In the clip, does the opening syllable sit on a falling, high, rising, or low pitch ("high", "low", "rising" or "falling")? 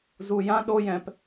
low